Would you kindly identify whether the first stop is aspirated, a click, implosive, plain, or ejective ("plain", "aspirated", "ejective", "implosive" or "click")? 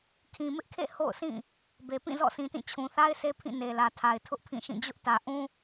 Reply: aspirated